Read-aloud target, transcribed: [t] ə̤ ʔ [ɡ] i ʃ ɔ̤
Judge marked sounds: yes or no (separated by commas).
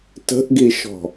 yes, yes